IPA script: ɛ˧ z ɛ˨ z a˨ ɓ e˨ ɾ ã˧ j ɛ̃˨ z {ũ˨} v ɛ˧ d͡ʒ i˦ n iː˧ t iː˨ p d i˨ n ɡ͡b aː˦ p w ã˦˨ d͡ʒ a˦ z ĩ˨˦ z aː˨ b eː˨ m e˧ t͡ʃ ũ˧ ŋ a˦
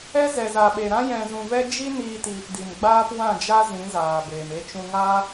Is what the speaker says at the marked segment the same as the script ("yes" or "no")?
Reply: yes